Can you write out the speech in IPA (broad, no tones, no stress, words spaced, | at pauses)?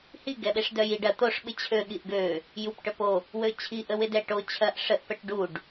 hi ɡɛɓeʂdœjiɖ ɐ t̪oʂ ɓɪt͡ɕʰø ɠiʔɡø | jup ʈœpo | wøt͡ɕʰi ʔəwɪdɛʈo t͡ɕʰɐʔ ʂəʔ pɛʈɖuɖ